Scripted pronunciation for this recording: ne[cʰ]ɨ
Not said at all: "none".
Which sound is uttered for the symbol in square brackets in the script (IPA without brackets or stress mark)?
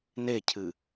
cʰ